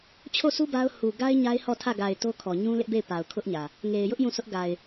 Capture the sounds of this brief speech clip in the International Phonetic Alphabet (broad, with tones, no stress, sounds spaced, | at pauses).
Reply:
t͡ɕʰ o˦˨ s u˦ b a˦ ʊ̯ h u˨ ɡ a˦ ɪ̯ ɲ a˦ ɪ̯ h ɔ˦˨ tʰ ä˦˨ ɡ a˨ ɪ̯ t o˦ kʰ ɔ˨ ɲ ũ˦ l ɪ˦ ʔ b e˦˨ ɪ̯ p a˨ ʊ̯ kʰ ʊ˦ ʔ ɲ ä˨ | ŋ e˨ ɪ̯ j ʊ˦ ʔ j ũ˦˨ sʰ ʊ˦ ʔ ɡ a˨ ɪ̯